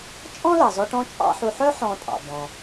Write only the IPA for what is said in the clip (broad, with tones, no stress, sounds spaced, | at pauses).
t͡ʃʼ ɔ̃˥ l ɑ˩ z ɔ˧ ʈ ɔ̃˥ t͡ʃʼ ɑ̰˥ ħ u˧ ħ œ˥ ħ ɔ̃˧ tʼ ɑ̰˩ b ɔ̃˩